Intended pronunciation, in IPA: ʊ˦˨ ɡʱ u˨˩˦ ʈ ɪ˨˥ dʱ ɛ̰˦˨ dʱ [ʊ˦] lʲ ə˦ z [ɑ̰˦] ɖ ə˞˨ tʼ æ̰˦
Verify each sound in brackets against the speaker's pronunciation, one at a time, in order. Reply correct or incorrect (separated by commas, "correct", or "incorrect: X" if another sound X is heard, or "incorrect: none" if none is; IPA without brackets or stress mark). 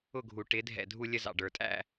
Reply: incorrect: u˦, incorrect: ɑ̰˨